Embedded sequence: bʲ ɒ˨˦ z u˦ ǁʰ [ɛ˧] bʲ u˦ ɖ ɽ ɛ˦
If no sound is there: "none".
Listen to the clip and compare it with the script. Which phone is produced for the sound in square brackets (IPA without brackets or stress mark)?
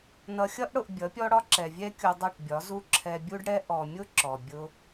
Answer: ɛ˧